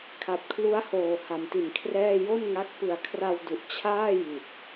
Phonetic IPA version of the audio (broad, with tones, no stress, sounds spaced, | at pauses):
kʰ a˨˩ p̚ kʰ l u˦˥ a̯ h oː˨˩ h a˨˩ m t i˨˩ n kʰ r ɛː˥˩ j o˥˩ n ŋ a˦˥ k̚ p ɯ˨˩ a̯ kʰ r a˧ w d u˨˩ ʔ t͡ɕʰ aː˥˩ j i˨˩ t̚